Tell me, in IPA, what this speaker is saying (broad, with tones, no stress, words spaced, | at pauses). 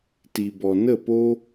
ti˨bɔ˨nə˦˨po˦